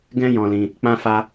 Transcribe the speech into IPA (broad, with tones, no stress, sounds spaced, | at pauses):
ɡ ɛ̃˧ j ɔ̃˧ l ĩ˧ | k͡p ã˧ f a˧